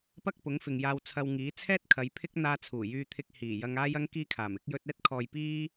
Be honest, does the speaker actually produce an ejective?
no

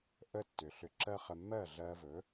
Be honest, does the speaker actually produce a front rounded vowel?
yes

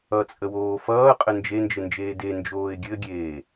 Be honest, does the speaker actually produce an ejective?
yes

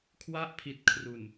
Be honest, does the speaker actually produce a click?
no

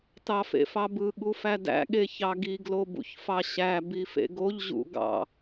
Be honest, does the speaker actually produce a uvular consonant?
no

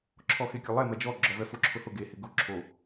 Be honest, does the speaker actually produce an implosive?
no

